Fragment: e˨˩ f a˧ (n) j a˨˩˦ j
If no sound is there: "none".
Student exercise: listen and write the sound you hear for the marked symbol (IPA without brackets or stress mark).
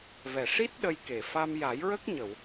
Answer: m